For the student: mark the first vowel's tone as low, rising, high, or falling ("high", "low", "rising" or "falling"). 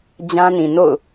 high